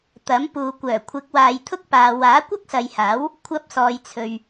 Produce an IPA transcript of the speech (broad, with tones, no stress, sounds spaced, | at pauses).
t̪ ɐ˨˥ m p uː˨ kʷ œː˨˩ kʷʰ ɪ˨˥ k̚ w aː˨ j t̪ʰ ʊ˥ k̚ p aː˧ w aː˨˥ kʷ ɐ˥ k̚ s ɐ˨ j h aː˨˥ w | kʷʰ ɐ˧ p̚ s ɔː˨ j t͡sʰ ɵ˨ ɥ